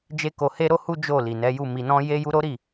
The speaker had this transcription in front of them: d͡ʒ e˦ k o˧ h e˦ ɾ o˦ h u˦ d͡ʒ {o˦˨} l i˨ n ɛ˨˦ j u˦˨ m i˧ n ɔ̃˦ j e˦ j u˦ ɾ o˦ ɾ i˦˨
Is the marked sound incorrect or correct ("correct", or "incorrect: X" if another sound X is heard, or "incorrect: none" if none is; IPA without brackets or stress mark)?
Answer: correct